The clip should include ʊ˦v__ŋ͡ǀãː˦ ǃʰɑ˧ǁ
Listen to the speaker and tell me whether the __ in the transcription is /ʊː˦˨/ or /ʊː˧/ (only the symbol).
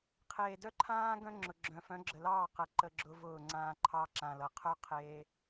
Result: ʊː˦˨